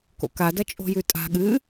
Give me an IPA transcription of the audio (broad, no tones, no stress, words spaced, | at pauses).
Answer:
ko̰ka dɐt͡ʃʼo̤jʉtʼa̤ ɠɨ